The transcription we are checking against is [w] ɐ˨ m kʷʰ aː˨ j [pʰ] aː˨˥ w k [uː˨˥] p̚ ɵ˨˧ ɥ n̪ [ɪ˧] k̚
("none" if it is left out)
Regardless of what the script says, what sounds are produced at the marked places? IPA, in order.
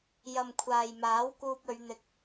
j, m, uː˧, ɪ˧

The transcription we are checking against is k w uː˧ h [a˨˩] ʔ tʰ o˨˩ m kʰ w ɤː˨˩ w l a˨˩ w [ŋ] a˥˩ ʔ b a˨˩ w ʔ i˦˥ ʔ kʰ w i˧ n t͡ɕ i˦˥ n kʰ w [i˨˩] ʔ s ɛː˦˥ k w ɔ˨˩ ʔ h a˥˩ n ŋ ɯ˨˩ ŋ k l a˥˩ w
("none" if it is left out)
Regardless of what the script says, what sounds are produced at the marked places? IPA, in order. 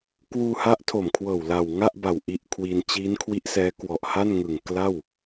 a˦˥, ŋ, i˦˥

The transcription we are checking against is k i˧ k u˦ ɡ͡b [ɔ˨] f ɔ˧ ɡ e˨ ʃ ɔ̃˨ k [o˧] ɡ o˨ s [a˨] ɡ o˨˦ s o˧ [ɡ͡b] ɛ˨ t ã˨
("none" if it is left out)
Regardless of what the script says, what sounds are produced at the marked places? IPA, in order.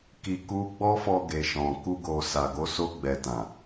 ɔ˦, u˧, a˨, ɡ͡b

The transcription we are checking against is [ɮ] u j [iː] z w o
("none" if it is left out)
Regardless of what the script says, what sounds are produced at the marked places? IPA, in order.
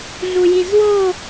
ɮ, i

